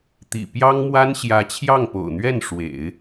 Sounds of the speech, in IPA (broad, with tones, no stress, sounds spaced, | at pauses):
t̪ ḭ˨˩ p j ɑ˥ ŋ m w a˥ n ɕ j ä˧˥ t͡ɕʰ j ɑ˥˩ ŋ p o̰˨˩ ʊ̯ n̪ ɥ ɛ˥˩ n ʂ w ḛ˨˩˦ ɪ̯